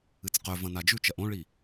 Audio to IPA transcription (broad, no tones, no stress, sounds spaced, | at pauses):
ɨ t͡s q ɵ v ɐ̃ n a d͡ʒ ʉ t͡ʃ ɐ ʔ õ ɭ i